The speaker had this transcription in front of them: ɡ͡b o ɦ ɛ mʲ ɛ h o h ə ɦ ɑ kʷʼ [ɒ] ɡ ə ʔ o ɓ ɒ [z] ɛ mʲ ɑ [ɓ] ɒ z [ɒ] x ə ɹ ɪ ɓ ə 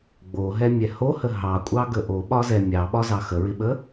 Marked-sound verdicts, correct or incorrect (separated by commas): incorrect, correct, correct, incorrect